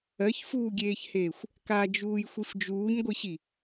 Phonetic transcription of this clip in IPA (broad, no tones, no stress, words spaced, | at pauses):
ɜçfuːɡʲeːçheːxʷ | kad͡ʒuːjxʷif d͡ʒuːɲɡʷiɕi